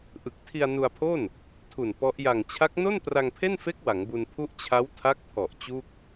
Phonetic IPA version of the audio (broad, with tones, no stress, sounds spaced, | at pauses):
ʔ ɯ˨˩ k̚ tʰ i˧ a̯ n u˧ a̯ pʰ o˥˩ n | tʰ u˨˩ n p ɔ˦˥ ʔ j a˨˩ ŋ t͡ɕʰ a˦˥ k̚ n o˥˩ n p r a˧ ŋ pʰ e˥˩ n f e˦˥ k̚ w a˩˦ ŋ b u˧ n pʰ u˥˩ ʔ t͡ɕʰ a˦˥ w tʰ a˦˥ k̚ pʰ ɔ˨˩ ʔ t͡ɕ u˥˩ k̚